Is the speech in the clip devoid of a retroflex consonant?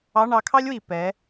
no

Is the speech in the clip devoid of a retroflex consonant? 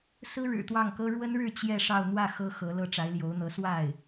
no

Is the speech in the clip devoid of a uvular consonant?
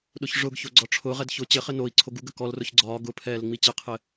no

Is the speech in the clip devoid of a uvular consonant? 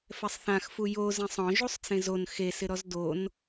yes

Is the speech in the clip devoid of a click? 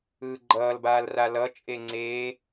no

